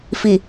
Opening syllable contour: low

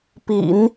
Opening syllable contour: low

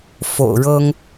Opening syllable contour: low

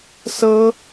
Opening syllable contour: high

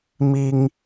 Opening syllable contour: high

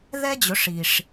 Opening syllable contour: high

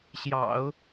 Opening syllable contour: low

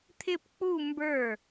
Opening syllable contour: falling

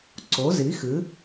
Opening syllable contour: rising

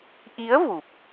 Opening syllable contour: rising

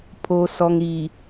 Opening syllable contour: low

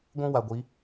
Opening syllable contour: high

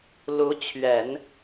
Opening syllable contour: rising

